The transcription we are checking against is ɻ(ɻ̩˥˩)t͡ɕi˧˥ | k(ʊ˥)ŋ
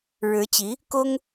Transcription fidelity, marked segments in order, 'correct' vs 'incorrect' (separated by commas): incorrect, correct